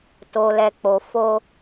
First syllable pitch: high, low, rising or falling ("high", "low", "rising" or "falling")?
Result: low